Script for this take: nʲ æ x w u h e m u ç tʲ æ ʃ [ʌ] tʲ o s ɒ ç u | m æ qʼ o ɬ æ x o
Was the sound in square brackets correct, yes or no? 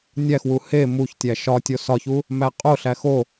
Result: no